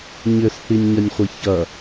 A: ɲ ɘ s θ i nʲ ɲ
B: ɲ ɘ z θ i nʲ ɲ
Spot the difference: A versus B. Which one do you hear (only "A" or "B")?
A